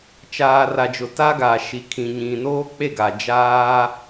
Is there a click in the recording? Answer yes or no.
no